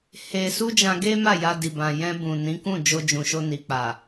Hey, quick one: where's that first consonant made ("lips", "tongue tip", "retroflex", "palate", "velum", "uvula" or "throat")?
throat